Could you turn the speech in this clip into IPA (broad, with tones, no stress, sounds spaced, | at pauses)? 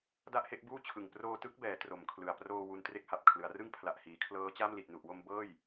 d a˥˩ ʔ h e˥˩ ʔ b uː˥˩ t͡ɕʰ ɯ˨˩ ŋ p r oː˧ t ɯ˦˥ k̚ b ɛː˩˦ t r o˨˩ m kʰ l ɯ˨˩ a̯ p r oː˧ w u˧ n t r e˦˥ k̚ h a˨˩ p̚ kʰ l ɯ˩˦ a̯ r ɯ˥˩ ŋ pʰ l a˨˩ ʔ h iː˩˦ kʰ l ɤː˦˥ t͡ɕ a˥˩ m l i˨˩ t̚ n u˨˩ ʔ w o˧ m b ɤː˥˩ j